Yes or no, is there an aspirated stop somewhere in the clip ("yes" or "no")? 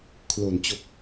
yes